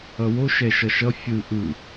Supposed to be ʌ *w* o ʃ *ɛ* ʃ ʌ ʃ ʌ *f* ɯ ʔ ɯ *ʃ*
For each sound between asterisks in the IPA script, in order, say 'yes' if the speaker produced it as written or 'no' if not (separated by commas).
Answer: yes, yes, no, no